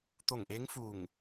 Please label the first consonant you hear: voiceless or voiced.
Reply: voiceless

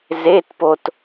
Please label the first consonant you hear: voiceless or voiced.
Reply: voiced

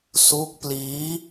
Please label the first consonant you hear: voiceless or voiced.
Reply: voiceless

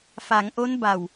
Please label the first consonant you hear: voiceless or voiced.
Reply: voiceless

